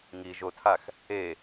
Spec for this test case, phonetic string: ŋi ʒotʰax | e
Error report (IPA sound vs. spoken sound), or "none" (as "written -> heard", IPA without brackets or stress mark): none